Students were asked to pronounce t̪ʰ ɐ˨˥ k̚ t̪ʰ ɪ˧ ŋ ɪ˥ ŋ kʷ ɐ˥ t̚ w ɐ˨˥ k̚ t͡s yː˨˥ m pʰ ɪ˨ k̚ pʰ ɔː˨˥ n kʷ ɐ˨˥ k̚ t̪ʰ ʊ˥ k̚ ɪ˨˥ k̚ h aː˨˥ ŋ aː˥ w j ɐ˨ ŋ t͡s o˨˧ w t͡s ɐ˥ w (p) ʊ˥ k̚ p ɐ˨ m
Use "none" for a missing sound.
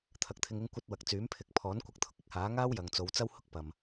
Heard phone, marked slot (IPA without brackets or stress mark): h